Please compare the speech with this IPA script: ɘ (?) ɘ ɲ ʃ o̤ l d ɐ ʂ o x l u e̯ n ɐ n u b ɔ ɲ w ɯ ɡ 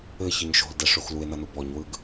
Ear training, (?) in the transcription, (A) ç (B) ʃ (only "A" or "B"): A